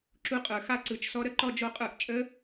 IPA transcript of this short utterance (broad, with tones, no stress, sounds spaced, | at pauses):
ǁ u˧ qʼ ə˞˨˩ x a˥˨ ǀ ɯ˨˩ t͡ʃ s ɔ˦˥ ɾ ə˦˥ ǃ ɔ˥˨ d͡ʒ o˥˨ qʼ ə˞˥˨ ʔ t͡ʃʼ ə˦˥